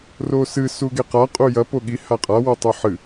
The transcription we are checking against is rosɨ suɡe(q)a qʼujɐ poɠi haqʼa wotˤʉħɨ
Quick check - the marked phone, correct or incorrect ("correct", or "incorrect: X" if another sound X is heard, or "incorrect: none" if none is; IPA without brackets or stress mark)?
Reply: correct